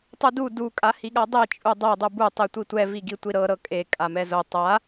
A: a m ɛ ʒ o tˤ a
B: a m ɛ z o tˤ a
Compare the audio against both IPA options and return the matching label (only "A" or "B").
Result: B